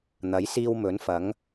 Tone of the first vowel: rising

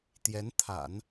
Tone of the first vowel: rising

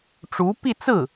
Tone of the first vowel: rising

